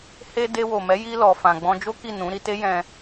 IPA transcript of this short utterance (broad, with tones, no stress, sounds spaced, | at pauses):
h e˧ d e˧ w o˨ m ɛ˨˦ j i˧ l ɔ˨ f ã˨ ɡ͡b ɔ̃˧ d͡ʒ o˦ k i˦˨ n ũ˨˦ ɾ i˧ t e˦ j ɛ̃˧